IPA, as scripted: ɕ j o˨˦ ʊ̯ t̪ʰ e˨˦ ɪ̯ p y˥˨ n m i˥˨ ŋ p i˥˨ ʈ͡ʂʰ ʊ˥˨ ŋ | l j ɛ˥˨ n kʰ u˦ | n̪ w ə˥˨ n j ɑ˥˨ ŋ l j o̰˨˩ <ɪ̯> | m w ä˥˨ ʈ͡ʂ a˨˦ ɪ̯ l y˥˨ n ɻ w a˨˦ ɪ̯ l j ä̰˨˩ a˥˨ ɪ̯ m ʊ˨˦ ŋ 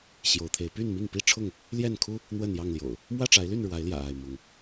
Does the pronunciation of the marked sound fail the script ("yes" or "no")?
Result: yes